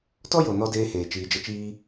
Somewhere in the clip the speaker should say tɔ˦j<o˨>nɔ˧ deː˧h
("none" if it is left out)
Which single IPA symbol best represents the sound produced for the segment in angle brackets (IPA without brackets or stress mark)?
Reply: o˨